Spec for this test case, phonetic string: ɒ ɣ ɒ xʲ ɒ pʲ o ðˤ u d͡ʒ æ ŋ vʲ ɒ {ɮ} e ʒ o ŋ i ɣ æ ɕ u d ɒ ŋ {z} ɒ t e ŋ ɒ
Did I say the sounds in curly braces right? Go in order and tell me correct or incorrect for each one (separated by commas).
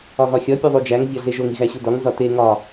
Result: correct, correct